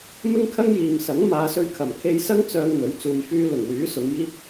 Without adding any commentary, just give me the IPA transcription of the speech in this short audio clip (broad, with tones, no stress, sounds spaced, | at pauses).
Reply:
m ɪ˥ ŋ kʰ ɐ˥ ŋ j iː˨ m s ɐ˨˥ ŋ m aː˨˧ s ɵ˧ ɥ kʰ ɐ˨˩ m kʰ e˧ j s ɐ˥ ŋ t͡s œː˧ ŋ n̪ ɵ˨˥ ɥ t͡s uː˧ j f yː˥ l ʊ˨˩ ŋ w yː˨˥ s ʊ˨˧ ŋ j iː˥ k̚